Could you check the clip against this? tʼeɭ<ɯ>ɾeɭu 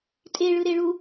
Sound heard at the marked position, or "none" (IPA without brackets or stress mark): ɯ